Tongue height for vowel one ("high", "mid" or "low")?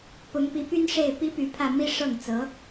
high